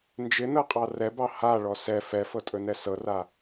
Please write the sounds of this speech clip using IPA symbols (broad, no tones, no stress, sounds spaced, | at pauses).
n d͡ʒ ɪ n ɤ qʼ ɑ r ɛ b ɑ h a ɭ ɔ s ɛ f ɛ f ɤ tʼ ɵ n ɛ s ɤ r a